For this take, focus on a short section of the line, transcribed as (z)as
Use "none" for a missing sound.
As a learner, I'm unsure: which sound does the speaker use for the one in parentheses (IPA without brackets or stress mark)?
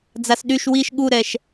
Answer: d͡z